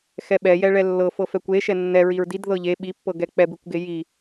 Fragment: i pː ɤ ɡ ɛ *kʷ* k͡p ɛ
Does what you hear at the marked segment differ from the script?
yes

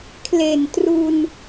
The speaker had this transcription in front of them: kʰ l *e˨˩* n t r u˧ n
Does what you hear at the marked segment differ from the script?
no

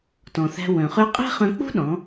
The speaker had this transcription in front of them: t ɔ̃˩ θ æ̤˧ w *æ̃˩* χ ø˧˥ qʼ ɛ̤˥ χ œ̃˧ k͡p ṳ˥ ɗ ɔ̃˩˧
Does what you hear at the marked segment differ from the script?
yes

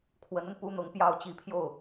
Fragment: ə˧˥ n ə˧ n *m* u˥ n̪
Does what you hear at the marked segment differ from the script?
yes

